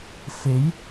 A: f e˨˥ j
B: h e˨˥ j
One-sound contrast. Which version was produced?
A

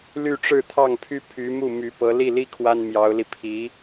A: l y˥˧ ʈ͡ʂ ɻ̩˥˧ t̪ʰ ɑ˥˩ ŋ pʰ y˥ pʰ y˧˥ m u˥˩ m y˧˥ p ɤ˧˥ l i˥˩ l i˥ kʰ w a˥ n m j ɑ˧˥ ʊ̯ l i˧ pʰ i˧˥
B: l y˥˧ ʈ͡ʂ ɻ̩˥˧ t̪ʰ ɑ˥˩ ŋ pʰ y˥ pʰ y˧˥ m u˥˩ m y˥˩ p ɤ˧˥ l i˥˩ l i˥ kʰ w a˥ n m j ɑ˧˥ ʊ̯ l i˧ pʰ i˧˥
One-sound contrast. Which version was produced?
A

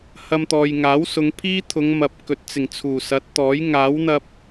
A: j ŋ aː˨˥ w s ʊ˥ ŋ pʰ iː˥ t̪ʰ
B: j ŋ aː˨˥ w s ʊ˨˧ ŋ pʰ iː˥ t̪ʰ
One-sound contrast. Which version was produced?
B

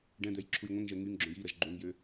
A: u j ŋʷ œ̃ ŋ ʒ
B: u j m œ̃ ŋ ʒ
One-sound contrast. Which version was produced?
A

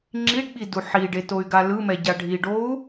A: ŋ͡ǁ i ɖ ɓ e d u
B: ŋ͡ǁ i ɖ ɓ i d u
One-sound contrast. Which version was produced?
B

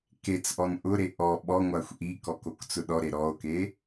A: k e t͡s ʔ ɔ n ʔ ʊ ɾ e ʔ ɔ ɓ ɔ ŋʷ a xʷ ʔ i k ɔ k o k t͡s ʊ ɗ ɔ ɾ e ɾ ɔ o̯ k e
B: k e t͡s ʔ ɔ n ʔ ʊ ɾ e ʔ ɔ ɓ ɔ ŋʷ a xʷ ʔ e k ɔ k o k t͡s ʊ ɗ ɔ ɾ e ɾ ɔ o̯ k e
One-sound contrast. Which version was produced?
A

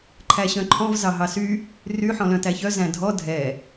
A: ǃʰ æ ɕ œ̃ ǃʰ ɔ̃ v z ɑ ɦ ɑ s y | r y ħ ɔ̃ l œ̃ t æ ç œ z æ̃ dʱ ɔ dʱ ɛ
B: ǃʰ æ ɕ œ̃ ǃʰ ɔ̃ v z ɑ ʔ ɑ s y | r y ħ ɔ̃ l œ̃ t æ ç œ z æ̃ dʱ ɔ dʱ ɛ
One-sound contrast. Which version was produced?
A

